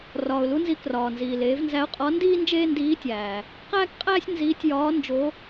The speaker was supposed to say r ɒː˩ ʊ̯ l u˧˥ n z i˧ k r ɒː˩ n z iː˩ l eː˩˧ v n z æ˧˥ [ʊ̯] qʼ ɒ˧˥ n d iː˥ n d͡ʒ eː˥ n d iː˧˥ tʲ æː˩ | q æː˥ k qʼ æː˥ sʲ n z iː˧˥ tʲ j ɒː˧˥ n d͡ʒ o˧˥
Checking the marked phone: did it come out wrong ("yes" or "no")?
no